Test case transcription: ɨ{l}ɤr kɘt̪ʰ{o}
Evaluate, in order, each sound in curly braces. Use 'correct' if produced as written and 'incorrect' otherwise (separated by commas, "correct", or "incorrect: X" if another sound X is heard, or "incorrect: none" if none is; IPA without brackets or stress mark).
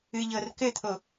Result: incorrect: ʎ, correct